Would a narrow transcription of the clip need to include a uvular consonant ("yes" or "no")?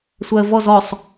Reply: no